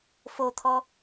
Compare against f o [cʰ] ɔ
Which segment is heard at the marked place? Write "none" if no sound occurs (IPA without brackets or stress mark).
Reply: t̪ʰ